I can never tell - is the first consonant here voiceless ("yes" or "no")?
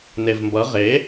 no